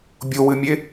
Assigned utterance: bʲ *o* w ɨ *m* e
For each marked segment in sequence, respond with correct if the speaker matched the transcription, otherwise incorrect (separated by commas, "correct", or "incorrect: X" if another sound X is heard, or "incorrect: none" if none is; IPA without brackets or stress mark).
correct, incorrect: mʲ